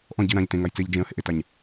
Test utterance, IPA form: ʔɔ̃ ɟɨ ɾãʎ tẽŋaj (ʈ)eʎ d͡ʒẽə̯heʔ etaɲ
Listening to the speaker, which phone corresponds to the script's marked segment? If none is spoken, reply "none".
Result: t͡s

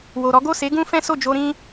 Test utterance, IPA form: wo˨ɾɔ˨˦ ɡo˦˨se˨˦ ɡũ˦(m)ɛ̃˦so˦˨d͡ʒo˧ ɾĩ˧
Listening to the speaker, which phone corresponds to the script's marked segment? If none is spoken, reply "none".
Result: f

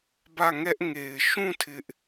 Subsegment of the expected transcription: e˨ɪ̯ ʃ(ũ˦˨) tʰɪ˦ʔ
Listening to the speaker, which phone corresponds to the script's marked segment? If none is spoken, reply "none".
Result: ũ˦˨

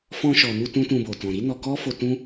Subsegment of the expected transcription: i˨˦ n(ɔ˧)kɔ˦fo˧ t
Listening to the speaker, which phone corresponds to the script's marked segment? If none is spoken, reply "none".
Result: ɔ˧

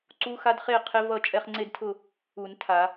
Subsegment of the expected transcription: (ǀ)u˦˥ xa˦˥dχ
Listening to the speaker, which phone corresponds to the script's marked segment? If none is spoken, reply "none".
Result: ǀ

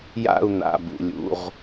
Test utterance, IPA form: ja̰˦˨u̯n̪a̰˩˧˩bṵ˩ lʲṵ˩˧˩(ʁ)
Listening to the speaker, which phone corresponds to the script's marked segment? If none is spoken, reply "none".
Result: ʁ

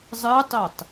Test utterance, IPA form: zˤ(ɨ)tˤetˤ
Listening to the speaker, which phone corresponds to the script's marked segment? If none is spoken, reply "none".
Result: ɨ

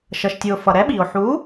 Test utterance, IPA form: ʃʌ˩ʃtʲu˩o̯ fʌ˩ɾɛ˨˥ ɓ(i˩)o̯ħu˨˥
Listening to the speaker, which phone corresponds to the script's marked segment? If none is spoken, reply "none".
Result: i˩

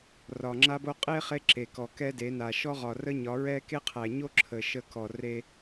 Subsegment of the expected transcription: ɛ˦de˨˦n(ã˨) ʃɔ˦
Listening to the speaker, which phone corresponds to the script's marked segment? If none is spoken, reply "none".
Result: a˨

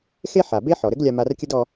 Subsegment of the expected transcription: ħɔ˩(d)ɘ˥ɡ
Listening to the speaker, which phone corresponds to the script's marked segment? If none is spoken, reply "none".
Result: ɾ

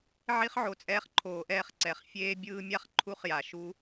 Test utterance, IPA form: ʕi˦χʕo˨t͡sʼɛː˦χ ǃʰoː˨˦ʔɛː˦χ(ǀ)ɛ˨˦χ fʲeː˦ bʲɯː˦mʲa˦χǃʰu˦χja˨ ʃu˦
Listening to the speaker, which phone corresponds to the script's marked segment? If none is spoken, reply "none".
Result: ǀ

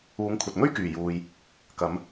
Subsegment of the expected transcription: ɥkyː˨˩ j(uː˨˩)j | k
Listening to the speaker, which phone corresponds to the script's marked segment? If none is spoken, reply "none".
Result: uː˨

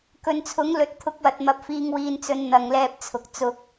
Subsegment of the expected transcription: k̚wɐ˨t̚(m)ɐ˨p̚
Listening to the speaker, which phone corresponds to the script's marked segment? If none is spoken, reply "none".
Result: m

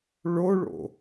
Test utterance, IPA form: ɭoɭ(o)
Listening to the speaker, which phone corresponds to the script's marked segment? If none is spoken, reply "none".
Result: o̰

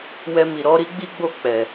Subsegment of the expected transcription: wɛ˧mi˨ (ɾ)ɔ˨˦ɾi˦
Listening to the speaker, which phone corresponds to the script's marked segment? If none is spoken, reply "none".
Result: ɾ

